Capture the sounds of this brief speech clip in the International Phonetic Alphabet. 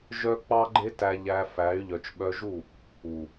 ʒœ˦k͡pɑ˦ɡ͡ǃe˦tæ˧ ʎæ˧fæ˨˦y̯ ʎœ˨t͡ʃɓœ˧ʒu˦˨ | u˨

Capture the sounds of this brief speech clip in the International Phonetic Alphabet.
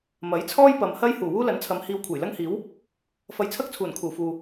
mɐ˨˥jt͡sʰɔː˥j pɐ˨mhɐ˥j huː˨˩wuː˥lɐ˨˥nt͡sʰɐ˨˧m hiː˧wkʷʰɐ˨˩jlɐ˥ŋhiː˨˥w | fɐ˧jt͡sʰɐ˥k̚t͡sʰuː˨˩n kʰuː˨˩fuː˨

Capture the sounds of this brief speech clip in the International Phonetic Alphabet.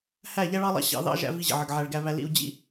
hæ˦˨ʎæ˦ɭɑ˦lˠɑ̰˦ ɕɑ̰˧ðɑ̰˦ʒæ̰˧ vi˧ʑə̰˨ʕə˨ɡ ʕæ˧ɭɡæ˦βæ˦ lḭ˧u̯d͡ʑḭ˦

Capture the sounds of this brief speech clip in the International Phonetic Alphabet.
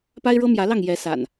pa˦ɪ̯ɻɤ˦mjä˨˦lɑ˥˨ŋ jɛ˨˦sa̰˨˩n

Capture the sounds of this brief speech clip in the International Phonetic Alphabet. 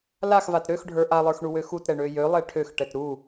laxvat ɾøxɖʱə˞ ʔalˠə˞xɳuwø xutɾɛɳø jølˠɛ ʈʰøxʈɛt ɾu

